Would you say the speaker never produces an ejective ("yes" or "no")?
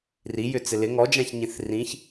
yes